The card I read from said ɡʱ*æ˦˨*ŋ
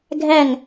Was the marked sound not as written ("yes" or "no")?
no